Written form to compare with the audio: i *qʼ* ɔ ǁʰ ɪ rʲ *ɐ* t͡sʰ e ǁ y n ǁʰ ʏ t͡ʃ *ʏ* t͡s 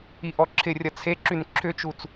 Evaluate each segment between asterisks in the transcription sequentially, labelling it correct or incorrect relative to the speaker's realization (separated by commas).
incorrect, correct, incorrect